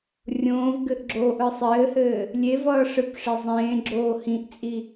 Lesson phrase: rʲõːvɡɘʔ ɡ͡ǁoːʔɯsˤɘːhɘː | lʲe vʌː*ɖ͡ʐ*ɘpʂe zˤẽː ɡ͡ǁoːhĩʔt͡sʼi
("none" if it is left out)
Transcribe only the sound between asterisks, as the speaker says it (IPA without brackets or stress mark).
ʂ